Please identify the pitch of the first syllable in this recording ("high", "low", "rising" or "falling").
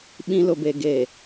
high